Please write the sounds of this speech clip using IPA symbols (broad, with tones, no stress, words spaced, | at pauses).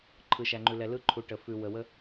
ǃʰɯ˨ʃæ˨ŋ͡ǃʉ˨ lɛ˨lɯ˦ǃʰu˨ ʈə˨ fʉ˨ wə˨wə˦